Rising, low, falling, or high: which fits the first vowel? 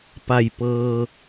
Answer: low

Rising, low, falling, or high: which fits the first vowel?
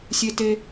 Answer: high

